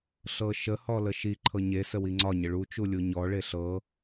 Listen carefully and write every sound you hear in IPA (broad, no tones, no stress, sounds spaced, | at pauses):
ɬ ɤ ʃ ə h ɔ l ə ʃ i ǃʰ ɤ ɲ e s ə w i ŋ͡ǀ ɒ ɲ ə ɭ u t͡ʃ u lʲ u ɲ ɔ ɭ e ɬ ɤ